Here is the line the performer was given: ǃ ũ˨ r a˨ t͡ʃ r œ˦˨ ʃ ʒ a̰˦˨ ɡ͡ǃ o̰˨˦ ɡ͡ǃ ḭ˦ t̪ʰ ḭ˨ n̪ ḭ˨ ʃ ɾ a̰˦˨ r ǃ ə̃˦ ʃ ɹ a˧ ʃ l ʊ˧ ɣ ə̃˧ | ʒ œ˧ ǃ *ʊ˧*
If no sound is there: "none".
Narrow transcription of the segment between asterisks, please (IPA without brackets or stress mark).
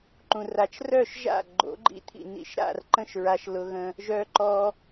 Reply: ɔ˧